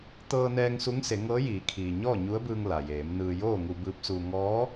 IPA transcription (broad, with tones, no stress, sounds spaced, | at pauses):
t̪ ɤː˧ n ɛː˧ ŋ s u˧˥ ŋ s e˩˧ ŋ ɤː˧˥ j iː˩˧ kʰ iː˩ ɲ ɔː˥˨ ɲ u˧˥ ə̯ b ɯː˧ ŋ l a˩ j eː˩˧ m n ɯː˧ j oː˥˨ ŋ u˧ b ɯː˧˥ p̚ s uː˧ ŋ ɔː˧˥